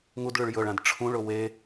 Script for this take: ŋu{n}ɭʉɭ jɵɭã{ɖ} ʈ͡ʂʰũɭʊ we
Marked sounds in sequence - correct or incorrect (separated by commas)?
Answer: incorrect, incorrect